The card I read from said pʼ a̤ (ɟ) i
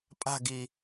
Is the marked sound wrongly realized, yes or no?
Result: yes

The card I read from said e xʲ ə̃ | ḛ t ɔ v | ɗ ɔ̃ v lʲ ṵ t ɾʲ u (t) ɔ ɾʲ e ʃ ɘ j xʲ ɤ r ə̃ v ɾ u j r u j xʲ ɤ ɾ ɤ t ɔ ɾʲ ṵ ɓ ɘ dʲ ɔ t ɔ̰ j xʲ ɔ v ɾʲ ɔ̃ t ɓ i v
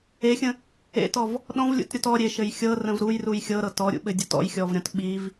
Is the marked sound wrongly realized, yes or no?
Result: no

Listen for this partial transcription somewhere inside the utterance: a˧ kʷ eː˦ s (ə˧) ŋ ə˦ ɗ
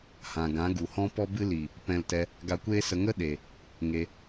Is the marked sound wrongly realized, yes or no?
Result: no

